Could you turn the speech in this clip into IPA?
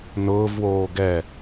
n ʊː v w oː ɡ ɛ

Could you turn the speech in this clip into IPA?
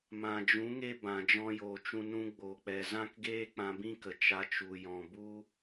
m ã˨ d͡ʒ ũ˨˦ ŋ e˦ b ã˨ d͡ʒ ɔ̃˧ j oː˨ t͡ʃ ũ˧ n ũ˧ ɡ͡b o˨ k͡p ɛ˨ z ã˦ k ɡ eː˦ k͡p ã˧ b ĩ˦ k ə˨ t͡ʃ a˧ t͡ʃ u˨ j ɔ̃˨ b u˦

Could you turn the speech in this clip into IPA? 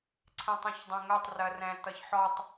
ǀʰ ɛ̃ tˤ ɛ̃ ç dˤ ẽ ŋ œ tˤ r ɜ r ɛ̃ t ʌ ç ħ ɔ tˤ

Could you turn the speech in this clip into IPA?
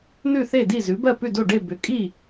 n̪ ʉ˥˩ θ e˥˩ d i˥˩ z ʉ˩˥ b ɜ˥˩ p ʉ˥˩ d o˥˩ ɖ e˥˩ b ʏ˩˥ kʼ i˥˩

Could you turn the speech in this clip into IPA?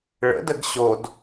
ɭ ə̰ d ə ɡ ɕ o d

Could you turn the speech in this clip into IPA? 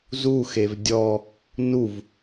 z u x e v dʲ ɔ | n u v

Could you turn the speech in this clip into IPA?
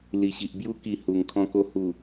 l i˨˩ ɕ i˨ ʔ b j u˧ k i˨˩ h u˨˩ ŋ kʰ ɔ̃˧ k o˧ h u˨˩

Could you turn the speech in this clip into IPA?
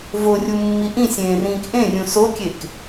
v o rʲ u mː i ʔ ĩ sʲ ẽː r ĩː k ʔ ẽ rʲ ũ s o kʲ e k

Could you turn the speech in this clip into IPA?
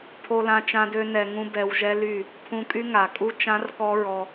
pʰ o˧ l ã˧ t͡ʃ ã˦ d ø˦ n ɛ˧ ŋ ũ˦ b ɛ˧ w ʒ ɛ˦ l y˦˨ | pʰ ũ˧ kʼ y˦ ŋ a˨ kʼ u˦ t͡ʃ ã˦ r k ɔ˦ ɹ ɔ˧

